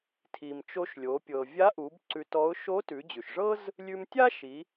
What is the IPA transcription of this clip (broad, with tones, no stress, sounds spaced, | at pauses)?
tʰ i˩ m t͡ʃ o˧ ʃ lʲ o˩˧ pʲ ɤ˩ vʲ a˧˥ ʔ u˩˧ b ǀ ʉ˧ t ɔ˧˥ ʊ̯ ʃ o˧˥ t ʉ˩˧ d͡ʑ ʉ˩ ʃ ʐ ɤ˥ z | lʲ ʉ˧ m tʲ a˥ ʃ i˩˧